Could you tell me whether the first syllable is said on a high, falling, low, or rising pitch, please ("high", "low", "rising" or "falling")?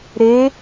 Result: rising